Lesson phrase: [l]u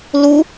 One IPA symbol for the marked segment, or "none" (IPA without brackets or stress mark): l